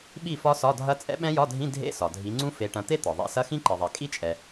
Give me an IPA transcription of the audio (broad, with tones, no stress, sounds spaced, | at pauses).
ɓ i˥˨ f ɒ˦˥ s ɒ˧˥˧ dʱ ɐ˦˥ t͡sʼ ɛ̰˦˥ ɓ ɛ̃˦˥ j ɒ˧˥˧ dʱ ĩ˧˥˧ dʱ ḛ˧˥˧ s ɒ˩ dʱ i˨˦ ŋ͡ǀ ũ˦˥ f e˨˦ ʈ ɐ̃˨˦ t̪ e˦˥ t̪ ɒ˩ ðˤ ɛ̰˨˦ s ɐ˧˥˧ x ĩ˦˥ ǃ i˩ ðˤ ɛ˩ kʼ i˦˥ t͡ʃʼ ɛ˩